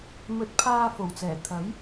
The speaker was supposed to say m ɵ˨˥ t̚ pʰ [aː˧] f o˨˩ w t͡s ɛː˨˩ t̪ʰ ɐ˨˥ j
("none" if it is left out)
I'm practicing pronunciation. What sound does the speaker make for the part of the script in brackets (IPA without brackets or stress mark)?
aː˧